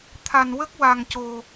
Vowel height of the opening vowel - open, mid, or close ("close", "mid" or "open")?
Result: open